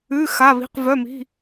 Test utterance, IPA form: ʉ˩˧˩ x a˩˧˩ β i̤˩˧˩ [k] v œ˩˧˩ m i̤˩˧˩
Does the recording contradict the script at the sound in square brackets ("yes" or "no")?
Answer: yes